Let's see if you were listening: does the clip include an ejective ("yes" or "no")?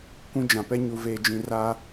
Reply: no